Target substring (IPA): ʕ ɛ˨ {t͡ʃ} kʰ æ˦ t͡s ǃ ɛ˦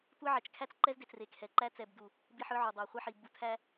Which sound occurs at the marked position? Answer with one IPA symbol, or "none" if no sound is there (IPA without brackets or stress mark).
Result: t͡ʃ